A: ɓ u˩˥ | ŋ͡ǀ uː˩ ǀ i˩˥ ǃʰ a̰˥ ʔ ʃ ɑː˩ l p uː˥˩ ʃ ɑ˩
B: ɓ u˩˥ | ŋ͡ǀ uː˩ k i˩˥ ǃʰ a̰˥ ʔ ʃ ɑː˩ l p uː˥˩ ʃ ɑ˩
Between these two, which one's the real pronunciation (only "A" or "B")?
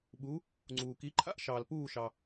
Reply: B